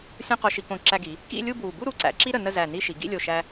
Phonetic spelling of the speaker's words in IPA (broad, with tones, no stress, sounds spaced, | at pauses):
sʲ õ˧ q o˧ ʃ i˧ k õ˧˩ ǁ æ˧ ɡ i˩˧ | k ḭ˥˧ lʲ u˥˧ b w u˧˩ b u˥˧ ɾ u˩˧ ǀ æ̰˩˧ ǁ i˥ ɾ ə˩˧ n ə˥˧ z æ˧˩ n i˥˧ ʃ i˩˧ ɡ ḭ˥˧ lʲ o˧˩ ʃ æ˧